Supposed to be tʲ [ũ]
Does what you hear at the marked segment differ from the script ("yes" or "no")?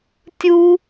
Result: yes